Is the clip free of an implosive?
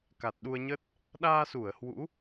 no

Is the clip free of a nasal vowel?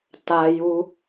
yes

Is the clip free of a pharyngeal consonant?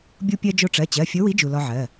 no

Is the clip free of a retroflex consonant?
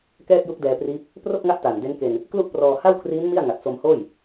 yes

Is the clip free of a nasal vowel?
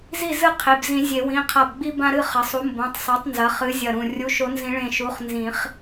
no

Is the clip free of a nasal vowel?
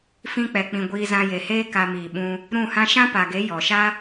no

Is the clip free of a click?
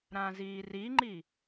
no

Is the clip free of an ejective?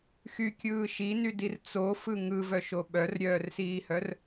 yes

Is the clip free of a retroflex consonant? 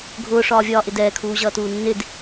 no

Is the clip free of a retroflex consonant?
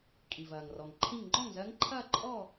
yes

